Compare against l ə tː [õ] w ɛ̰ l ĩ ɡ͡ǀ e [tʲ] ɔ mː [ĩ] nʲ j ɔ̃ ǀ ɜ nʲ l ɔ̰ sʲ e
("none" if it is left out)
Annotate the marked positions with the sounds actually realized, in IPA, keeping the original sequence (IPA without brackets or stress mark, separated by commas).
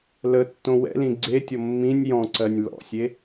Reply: õ, tʲ, ĩ